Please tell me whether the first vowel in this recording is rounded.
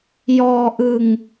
yes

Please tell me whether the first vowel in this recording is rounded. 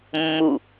yes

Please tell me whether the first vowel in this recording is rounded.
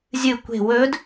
no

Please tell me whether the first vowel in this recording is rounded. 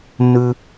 yes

